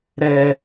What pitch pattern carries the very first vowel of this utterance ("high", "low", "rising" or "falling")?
low